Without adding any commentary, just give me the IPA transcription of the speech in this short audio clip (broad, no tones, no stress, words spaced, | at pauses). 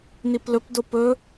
niplɵpdo pɵ